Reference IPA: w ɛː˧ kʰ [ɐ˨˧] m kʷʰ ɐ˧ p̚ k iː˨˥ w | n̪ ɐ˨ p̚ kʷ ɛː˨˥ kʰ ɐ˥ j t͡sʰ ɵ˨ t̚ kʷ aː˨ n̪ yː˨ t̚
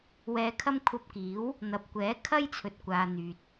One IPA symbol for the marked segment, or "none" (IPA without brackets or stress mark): ɐ˥